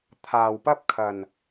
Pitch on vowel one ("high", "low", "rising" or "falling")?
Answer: low